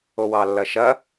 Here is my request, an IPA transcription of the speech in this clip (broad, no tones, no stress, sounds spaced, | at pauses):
o w ɑ lː ɐ ʃ ɐ